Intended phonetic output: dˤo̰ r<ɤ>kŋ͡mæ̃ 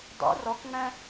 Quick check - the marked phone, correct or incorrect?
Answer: incorrect